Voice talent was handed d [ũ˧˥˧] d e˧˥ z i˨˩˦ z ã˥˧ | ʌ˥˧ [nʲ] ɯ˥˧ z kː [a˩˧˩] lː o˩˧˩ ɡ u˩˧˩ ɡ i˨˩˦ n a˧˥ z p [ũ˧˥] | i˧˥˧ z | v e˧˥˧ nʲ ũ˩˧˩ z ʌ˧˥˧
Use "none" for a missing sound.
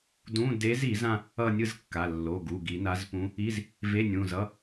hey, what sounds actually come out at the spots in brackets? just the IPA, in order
ũ˧˥˧, nʲ, a˩˧˩, ũ˧˥

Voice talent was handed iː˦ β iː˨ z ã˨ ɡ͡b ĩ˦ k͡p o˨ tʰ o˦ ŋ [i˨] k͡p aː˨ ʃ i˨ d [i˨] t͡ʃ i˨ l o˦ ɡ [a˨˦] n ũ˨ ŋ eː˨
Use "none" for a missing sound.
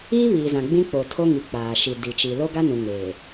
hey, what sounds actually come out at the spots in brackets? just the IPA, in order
i˨, i˨, a˦

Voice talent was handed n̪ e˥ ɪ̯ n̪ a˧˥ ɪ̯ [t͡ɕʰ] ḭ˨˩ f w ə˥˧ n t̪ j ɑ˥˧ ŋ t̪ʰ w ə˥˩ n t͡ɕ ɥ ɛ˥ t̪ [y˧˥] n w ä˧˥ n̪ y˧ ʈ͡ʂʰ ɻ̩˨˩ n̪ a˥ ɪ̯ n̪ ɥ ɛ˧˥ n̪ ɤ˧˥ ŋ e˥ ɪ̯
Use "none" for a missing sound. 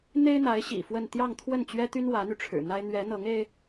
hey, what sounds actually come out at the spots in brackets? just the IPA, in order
ɕ, y˥

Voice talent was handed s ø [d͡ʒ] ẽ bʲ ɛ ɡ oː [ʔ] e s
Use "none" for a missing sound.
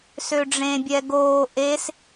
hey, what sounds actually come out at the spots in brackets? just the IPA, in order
ɖ͡ʐ, ʔ

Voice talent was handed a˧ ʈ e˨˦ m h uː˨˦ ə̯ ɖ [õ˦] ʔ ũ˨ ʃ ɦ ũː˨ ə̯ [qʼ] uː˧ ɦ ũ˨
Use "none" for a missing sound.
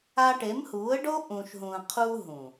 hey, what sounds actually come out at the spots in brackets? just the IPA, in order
o˦, qʰ

